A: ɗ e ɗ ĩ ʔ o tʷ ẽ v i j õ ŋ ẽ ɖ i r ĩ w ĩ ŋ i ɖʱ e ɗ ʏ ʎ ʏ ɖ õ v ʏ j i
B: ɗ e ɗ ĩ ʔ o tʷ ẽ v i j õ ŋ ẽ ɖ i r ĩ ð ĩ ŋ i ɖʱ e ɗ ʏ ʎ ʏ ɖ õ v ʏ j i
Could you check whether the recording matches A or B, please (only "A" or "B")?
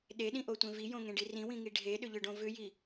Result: A